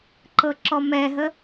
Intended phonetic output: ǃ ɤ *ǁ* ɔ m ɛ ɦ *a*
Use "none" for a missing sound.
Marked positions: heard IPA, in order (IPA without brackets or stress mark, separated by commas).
ǁ, ə